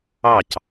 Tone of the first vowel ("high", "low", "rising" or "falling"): falling